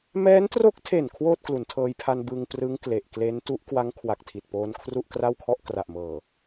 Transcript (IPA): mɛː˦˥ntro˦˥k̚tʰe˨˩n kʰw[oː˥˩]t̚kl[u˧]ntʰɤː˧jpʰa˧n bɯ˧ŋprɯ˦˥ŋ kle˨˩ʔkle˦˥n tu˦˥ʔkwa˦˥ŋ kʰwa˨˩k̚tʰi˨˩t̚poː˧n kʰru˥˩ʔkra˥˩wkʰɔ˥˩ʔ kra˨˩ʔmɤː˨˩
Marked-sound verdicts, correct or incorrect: correct, incorrect

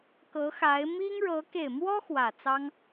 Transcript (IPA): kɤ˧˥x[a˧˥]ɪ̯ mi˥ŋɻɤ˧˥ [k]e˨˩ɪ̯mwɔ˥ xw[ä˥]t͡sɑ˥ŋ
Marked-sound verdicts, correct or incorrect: correct, correct, incorrect

